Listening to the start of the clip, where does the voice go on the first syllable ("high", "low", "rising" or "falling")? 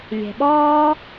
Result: low